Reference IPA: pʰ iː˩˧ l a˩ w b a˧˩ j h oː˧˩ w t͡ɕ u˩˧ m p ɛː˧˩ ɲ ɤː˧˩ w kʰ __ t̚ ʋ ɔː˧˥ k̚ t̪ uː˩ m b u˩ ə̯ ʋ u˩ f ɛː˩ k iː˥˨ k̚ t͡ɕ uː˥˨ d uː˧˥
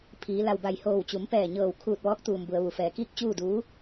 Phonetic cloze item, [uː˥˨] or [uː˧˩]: uː˧˩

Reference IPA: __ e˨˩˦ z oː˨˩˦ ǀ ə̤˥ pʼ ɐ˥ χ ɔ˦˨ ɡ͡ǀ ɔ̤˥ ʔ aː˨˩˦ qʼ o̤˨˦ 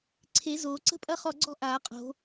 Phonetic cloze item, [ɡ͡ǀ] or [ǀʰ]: ǀʰ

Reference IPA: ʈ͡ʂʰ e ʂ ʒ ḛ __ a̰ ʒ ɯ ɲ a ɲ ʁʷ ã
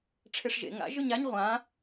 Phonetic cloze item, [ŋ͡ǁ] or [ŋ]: ŋ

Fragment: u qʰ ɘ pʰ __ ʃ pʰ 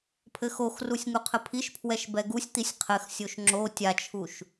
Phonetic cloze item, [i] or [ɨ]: i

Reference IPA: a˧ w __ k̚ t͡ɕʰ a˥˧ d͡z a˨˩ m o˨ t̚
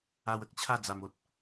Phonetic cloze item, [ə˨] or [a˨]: ə˨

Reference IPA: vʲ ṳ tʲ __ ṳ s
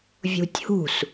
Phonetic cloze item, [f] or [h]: h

